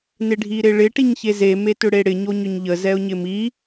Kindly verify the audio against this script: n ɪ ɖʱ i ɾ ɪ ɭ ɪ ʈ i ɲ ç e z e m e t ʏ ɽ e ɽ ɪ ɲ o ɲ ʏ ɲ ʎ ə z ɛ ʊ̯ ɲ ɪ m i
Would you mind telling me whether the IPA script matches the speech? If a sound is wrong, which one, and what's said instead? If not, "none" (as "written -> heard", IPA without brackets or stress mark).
none